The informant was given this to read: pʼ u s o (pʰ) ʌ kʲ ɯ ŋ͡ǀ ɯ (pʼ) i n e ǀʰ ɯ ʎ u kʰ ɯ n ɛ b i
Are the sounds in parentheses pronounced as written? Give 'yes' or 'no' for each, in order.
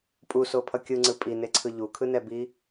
yes, yes

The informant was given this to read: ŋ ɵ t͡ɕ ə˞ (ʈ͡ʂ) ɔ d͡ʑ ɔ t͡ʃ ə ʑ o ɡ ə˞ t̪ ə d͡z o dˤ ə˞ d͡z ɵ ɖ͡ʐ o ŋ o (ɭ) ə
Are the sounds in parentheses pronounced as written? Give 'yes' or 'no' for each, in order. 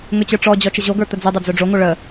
yes, yes

